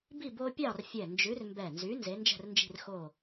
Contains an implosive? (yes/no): no